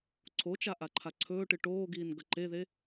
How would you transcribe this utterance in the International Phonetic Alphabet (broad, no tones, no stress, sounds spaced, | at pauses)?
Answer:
ǀʰ o t͡ʃ a ʔ a ǃʰ a ǀʰ ɵː ʈ ɨ ʈ oː ɡ iː n ɡ ɐ ǃ e ð e